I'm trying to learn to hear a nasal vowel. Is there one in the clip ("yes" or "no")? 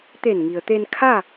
no